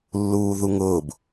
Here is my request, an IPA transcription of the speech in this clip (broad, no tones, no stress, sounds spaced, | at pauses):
lː uː ð u ŋ ʊː b